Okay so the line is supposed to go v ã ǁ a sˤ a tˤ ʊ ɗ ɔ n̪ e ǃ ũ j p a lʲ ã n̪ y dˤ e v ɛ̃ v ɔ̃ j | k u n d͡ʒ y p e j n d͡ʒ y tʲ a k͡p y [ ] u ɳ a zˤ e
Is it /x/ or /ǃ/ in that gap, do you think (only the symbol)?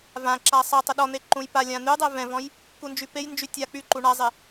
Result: ǃ